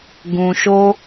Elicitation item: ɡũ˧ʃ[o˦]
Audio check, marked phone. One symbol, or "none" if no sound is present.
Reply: o˦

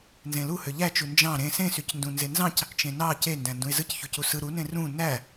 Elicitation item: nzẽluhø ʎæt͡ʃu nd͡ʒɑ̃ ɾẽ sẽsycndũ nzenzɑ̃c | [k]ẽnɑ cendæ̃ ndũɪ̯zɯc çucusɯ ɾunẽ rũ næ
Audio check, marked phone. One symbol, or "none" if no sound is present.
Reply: t͡ʃ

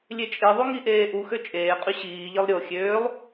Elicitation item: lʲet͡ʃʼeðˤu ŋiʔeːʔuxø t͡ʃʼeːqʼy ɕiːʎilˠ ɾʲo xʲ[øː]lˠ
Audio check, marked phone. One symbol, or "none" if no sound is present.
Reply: øː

